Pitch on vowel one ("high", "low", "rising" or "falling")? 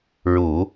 low